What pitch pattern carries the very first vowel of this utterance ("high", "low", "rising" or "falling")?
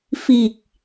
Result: low